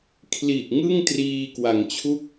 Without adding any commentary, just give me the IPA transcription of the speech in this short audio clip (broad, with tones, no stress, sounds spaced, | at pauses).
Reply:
kʰ l i˨˩ ʔ ŋ ɯ˥˩ ŋ t r iː˧ k w a˩˦ ŋ t͡ɕʰ u˥˩ k̚